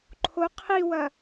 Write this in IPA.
ǃʰo qʰiwɐ

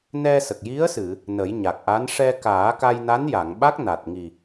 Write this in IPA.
nɛ˧sə˨˩k̚ji˧˥ə̯ sɨ˨˩˨ | nə˨˩˦jɲa˨˩k̚ ʔa˧˥n ʂɛ˧kaː˨˩˦ka˧j na˧˥nja˨˩˨ŋɓa˦˥k̚ na˨˩t̚ŋi˨˩

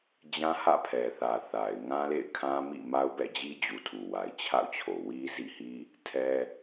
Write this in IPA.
d͡ʑã˦hä̰˦˨pʰɛ˨θä˨ θa˨ɪ̯ ŋã˦lḛ˦˨ɪ̯kʰã˦mḭ˦˨ ma˦ʊ̯bɛ̰˦˨d͡ʑi˦d͡ʑu˨ tʰu˨wa˨ɪ̯t͡ɕʰa̰˦˨ʊ̯t͡ɕʰo˨ wi˦zḭ˦˨hi˦ | tʰɛ˦

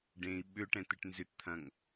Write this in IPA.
ɖẽi̯ ɓʏʈɛ̃ t̪ɪʈnzʏtt̪ʰɐ̃ŋ

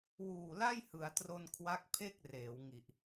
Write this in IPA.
wuː˨˩la˥˩jhɯ˩˦a̯tro˧n kʰwa˦˥k̚pʰe˥˩k̚reː˩˦w ŋi˨˩ʔ

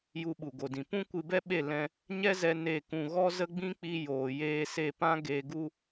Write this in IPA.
ju˧ɓu˨ɡo˨dĩ˨ pũ˦ kʷɨ˧bɛ˦ɓe˦˨ lɛ̃˧ | ɲɛ˦zɛ˧ ne˦˨kũ˧ ɣɔ˦zə˦ɡ͡bĩ˦k͡pi˧ joː˨jeː˧ se˧pã˦ ɡe˧ɡu˦

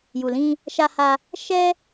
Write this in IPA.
ju˨lĩ˧ | ʃa˧ha˧ | ʃɛ˦

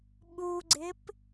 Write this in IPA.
ɓuɡ͡ǀɪp

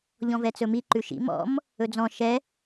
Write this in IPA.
ʎɔ̃vɛt͡sɵmi ǃʉʃḭ mɔ̰m | ɵd͡zɔ̃ ʃɛ

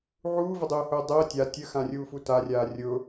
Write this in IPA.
ʕuːvədˤʊːhʊː dˤəː tʲa tʲəxãrʲuːfu tarʲaː rʲʊ

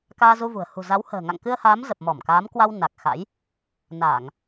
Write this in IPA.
kaː˧zu˧vṳ˨˩ə̯ hṳ˨˩za˨˦whə̤ː˨˩ ŋa̰˧˨ŋkɨ˧ə̯haː˨˦m zə˨˩p̚mɔ˧˩mkaː˨˦mkwa˧w na˨˩k̚ xa̰˧˥j | na˧˩˨ŋ

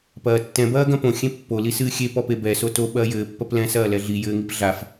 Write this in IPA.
pɐːtːɛ̃ bɐːɡɐ̃põ xʲẽpːo lisɨːxʲe pɔpebɛ soto ɓɐːjɘː pːɐplɛ̃ sɐːlɛɮi jɘːŋipɮaf

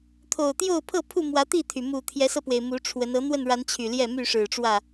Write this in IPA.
t̪ʰo˨˩ʊ̯t̪jo˥˨ʊ̯ pʰɤ˥˨pʰu˥˨mwä˨˦ t̪i˥˨t̪ʰy˩ mu˨˩t̪ʰjɛ˨˦sɤ˧pwe˩ɪ̯ mu˨˦ʈ͡ʂʰwə˨˦n ɤ˨˦n̪wə˥˨nɻa˨˦n t͡ɕʰy˨˩ljɛ˥˨my˥˨ ʂɻ̩˨˩ʈ͡ʂwä˥˨

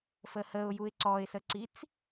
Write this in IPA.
fəhəʊ̯juɪ̯ ǀɔɪ̯səǀit͡s

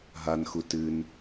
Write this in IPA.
ɦanxu tɨn

